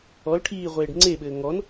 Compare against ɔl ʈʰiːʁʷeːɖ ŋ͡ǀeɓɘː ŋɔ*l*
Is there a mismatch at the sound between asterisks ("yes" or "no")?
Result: yes